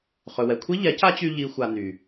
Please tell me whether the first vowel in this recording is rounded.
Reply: yes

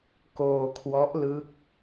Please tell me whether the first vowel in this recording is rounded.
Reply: yes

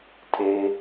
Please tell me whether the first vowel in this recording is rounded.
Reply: no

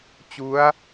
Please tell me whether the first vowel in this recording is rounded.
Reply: yes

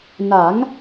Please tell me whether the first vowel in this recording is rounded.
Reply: no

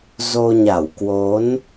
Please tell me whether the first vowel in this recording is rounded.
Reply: yes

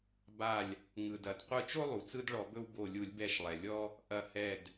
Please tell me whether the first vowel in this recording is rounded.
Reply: no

